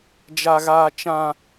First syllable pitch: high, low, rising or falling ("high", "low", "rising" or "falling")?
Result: high